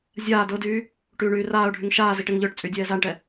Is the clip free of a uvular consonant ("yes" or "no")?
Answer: yes